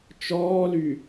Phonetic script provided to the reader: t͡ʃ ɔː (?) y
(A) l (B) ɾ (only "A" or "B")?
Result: A